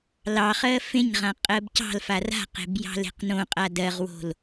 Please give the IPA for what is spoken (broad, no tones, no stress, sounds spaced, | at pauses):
l ɑ χ ɜ f ẽ ɲ ʁ ã qʼ ɜ b c ɑ̤ l f a r a̤ q e̤ b j ɑ̤ l e̤ q n õ qʼ a d ɜ ʁ w o̤ l